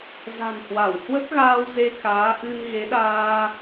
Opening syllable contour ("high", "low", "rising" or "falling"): low